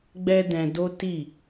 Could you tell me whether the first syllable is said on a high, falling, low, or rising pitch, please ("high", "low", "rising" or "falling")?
high